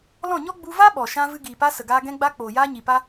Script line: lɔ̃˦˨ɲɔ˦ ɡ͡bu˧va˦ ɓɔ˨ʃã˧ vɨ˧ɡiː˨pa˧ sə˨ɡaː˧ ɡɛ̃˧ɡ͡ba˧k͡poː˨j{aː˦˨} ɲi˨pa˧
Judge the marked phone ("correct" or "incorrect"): incorrect